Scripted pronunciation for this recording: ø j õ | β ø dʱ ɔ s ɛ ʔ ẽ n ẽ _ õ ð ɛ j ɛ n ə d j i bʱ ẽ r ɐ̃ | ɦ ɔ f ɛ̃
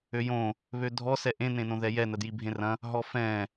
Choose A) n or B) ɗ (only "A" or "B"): A